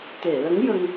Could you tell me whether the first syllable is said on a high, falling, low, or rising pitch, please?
low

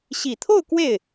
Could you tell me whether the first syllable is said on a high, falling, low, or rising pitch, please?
low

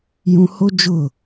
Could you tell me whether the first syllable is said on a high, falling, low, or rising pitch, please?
high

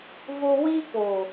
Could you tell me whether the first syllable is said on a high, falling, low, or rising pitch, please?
high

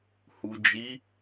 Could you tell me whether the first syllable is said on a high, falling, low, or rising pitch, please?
low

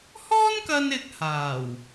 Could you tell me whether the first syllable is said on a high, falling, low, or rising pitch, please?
high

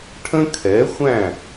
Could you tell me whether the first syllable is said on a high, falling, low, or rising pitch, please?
high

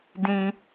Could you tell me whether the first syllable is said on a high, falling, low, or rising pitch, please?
high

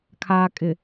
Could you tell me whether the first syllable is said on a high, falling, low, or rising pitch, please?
low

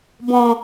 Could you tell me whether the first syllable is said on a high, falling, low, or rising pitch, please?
low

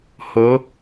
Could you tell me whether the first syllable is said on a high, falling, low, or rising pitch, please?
rising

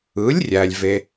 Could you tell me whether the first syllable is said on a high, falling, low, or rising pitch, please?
rising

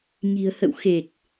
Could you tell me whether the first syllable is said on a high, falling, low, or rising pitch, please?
low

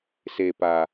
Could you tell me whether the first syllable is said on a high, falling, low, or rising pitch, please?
low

